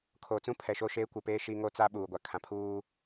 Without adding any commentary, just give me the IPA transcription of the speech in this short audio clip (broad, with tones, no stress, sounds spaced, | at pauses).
kʰ oː˨ t͡s ũ˦ pʰ ɛ˨ ʃ o˦˨ ʃ eː˦ kʷ ɪ˨ p eː˦ ʃ i˦ ŋ o˦ t͡s a˦ ɓ uː˨ ɡʷ a˨ kʰ ã˨ pʰ uː˦